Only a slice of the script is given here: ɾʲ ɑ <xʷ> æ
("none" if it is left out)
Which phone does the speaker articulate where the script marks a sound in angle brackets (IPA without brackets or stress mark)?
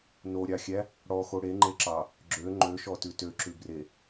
xʲ